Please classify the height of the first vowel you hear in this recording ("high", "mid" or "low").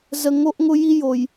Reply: mid